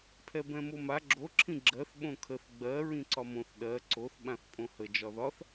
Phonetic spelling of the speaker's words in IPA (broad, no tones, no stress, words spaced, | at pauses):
pʰɛbɛ̃moma ɡ͡ǁo ǁʰĩɡ͡ǁɜθ ɓõkʰəθ ɡ͡bɜ ɹĩǀɒmõθ ɗɜ ǀoθ ɓãθpʼõhə d͡ʒɒðɒθ